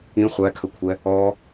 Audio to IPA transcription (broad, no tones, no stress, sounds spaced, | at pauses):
ĩ χʷ æ kʰ ə kʷʰ ɛ | ɔ